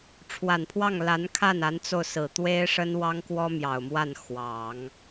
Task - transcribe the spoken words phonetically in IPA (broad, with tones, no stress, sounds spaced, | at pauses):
ʈ͡ʂʰ w a˨˩ n pʰ w ɑ˥˩ ŋ l a˧˥ n kʰ a˥˩ n a˧˥ n t͡s o˧ ʊ̯ s ɹ̩˨˩ t̪ w e˥ ɪ̯ ʂ ə˥ n w ɑ˥ ŋ k w ɔ˥ m j ɑ˨˩ ʊ̯ m w a˥˩ n x w ɑ˨˩˦ ŋ